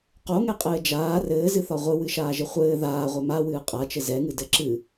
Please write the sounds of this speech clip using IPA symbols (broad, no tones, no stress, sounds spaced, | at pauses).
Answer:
q o ŋ ɛ qʼ ɘː d͡ʒ aː r ɘː z ɨ θ ɒ ʁʷ ɨ w ɨ ʃ aː ʒ ɘ χʷ ɘː ð aː ʁʷ ɛ m a w ɨː qʼ a t͡ʃ ɘ z ɛ ŋ ɨ d ɘ ǁ ɨ